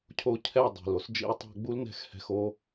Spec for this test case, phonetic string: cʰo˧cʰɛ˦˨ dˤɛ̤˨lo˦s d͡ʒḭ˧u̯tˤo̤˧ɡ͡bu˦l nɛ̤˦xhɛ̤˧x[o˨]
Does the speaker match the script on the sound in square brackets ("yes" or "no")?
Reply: no